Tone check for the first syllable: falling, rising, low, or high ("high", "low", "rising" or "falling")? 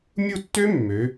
falling